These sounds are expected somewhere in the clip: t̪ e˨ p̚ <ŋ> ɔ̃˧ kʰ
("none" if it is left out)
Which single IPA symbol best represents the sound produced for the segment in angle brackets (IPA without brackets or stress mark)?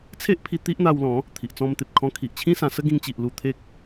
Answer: kʰ